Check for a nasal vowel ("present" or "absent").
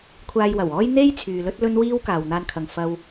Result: absent